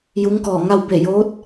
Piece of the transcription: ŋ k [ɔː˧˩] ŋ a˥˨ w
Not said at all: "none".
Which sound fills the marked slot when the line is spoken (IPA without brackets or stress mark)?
ɔː˧˩